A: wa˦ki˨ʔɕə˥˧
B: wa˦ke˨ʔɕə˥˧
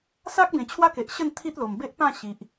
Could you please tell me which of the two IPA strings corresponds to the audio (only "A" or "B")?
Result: B